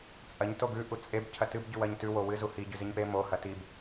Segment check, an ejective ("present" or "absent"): present